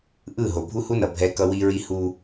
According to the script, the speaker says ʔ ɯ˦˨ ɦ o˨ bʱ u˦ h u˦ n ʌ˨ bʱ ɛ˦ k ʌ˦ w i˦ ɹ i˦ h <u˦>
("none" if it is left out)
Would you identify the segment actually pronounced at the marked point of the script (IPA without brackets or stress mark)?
u˦